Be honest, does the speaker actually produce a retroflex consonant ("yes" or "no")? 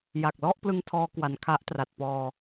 no